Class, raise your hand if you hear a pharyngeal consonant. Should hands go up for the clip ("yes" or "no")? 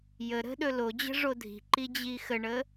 no